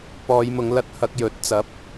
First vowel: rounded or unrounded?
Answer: rounded